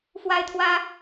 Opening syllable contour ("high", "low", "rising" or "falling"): high